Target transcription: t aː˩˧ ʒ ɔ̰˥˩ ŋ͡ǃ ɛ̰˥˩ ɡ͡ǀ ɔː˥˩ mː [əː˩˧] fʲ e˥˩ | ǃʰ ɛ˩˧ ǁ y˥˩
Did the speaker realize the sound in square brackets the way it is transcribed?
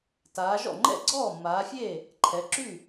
no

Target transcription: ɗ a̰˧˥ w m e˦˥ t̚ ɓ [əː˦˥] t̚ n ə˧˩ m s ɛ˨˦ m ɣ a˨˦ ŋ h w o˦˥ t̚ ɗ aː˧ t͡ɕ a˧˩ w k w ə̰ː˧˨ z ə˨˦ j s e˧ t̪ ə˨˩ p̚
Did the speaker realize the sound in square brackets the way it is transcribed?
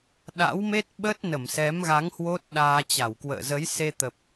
yes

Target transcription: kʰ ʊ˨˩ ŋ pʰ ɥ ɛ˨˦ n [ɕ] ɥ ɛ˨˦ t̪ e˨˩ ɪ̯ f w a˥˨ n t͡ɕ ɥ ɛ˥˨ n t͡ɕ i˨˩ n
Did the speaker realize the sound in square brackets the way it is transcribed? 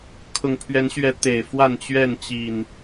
yes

